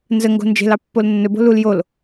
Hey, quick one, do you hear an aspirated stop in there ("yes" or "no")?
no